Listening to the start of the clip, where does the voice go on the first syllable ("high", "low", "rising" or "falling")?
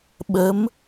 rising